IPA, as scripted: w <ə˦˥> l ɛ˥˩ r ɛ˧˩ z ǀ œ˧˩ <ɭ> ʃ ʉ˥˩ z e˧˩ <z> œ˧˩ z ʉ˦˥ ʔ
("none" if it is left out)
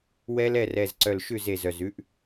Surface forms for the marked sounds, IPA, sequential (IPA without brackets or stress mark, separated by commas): ɛ˦˥, l, z